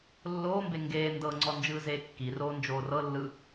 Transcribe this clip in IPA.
lː oː m b e ŋ ɡ eː n d ɤ ŋ͡ǀ ɔ n d͡ʒ ɯː z eː kː i r oː n d͡ʒ oː r ɤ lː ɯ

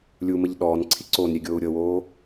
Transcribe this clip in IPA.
lʲ u m ə ʎ ɗ ɔː n ǀʰ i ǀ o n ɾʲ e ɡʲ oː u̯ ɾʲ ɤ w oː

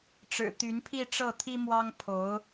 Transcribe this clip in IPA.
ʈ͡ʂ ɻ̩˨˩ t̪ y˧˥ n pʰ i˥˧ ʈ͡ʂ ɤ˥˩ t̪ʰ i˥ m w ɑ˥ ŋ pʰ o˧˥ ʊ̯

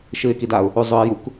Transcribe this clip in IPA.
ʃ ɨ ɪ̯ k i d a ʊ̯ | u zˤ ɵ ɪ̯ j u k

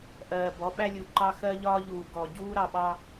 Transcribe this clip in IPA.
ʔ ɜː˨ b ɔ˨˦ ɓ æ˦ lʲ u˨ ǃ ɑ˦ x ɜ˦ ʎ ɒː˦ ʎ uː˨ ɡ ɔ˨ ɟ uː˦ ɾ ɑ˨ ɓ ɑ˦

